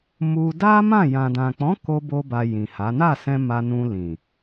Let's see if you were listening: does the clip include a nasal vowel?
yes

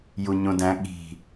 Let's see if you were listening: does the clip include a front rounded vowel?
no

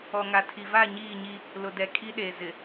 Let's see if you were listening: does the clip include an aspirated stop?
yes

